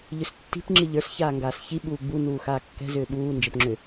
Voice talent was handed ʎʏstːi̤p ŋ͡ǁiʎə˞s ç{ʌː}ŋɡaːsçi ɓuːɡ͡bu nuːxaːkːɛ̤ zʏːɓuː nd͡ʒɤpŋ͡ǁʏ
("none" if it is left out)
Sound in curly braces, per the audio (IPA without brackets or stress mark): aː